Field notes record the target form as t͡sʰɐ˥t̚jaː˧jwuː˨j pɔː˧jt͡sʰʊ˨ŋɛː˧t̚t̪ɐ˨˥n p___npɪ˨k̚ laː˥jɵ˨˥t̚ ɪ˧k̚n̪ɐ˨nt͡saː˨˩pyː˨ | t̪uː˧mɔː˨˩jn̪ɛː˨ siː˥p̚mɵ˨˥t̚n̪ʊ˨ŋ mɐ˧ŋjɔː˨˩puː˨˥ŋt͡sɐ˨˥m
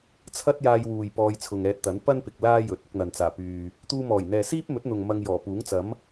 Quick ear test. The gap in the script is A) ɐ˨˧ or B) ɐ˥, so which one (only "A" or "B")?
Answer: B